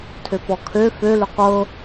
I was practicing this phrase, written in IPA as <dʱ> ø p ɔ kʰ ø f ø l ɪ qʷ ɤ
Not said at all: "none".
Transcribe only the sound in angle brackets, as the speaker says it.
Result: tʰ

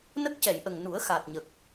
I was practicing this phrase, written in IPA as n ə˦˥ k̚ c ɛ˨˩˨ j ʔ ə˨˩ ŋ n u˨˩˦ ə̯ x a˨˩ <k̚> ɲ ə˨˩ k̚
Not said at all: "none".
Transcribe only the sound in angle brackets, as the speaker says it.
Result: t̚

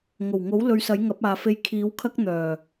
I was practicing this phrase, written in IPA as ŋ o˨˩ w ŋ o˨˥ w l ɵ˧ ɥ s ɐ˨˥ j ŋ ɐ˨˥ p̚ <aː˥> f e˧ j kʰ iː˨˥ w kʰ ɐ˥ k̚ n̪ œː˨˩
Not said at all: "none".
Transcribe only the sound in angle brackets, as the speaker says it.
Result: aː˨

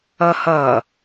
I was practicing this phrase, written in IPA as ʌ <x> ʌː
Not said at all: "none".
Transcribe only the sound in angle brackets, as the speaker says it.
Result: h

